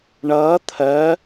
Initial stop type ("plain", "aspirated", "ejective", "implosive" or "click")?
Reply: aspirated